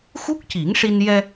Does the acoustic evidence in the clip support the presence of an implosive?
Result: no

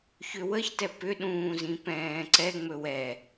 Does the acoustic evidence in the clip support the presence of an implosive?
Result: yes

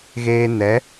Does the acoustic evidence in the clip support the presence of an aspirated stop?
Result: no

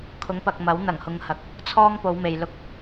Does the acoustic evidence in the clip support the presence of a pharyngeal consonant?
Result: no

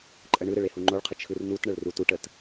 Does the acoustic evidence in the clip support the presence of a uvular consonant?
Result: yes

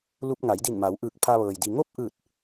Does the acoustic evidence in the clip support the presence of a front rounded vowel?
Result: no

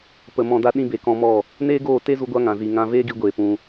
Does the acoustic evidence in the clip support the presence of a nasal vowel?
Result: yes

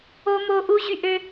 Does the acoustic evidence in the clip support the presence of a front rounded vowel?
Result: yes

